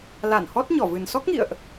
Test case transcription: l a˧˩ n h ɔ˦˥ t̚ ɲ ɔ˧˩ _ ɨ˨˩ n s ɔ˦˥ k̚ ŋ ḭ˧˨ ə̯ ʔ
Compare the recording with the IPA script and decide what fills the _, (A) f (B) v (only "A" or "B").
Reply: B